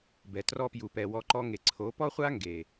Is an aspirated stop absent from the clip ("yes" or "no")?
no